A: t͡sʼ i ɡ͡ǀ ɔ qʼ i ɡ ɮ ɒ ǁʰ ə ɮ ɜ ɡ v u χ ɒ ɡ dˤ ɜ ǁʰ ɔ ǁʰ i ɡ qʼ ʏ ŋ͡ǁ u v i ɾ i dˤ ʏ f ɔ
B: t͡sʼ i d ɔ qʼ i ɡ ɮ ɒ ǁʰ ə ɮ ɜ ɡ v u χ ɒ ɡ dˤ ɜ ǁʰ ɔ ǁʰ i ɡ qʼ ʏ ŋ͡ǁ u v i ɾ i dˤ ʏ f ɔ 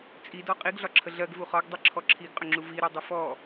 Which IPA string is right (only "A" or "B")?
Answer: B